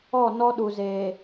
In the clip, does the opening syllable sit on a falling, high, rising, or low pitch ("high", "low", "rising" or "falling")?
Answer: falling